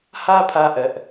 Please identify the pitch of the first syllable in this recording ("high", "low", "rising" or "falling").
high